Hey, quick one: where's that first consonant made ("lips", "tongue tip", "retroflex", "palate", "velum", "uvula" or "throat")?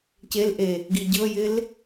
palate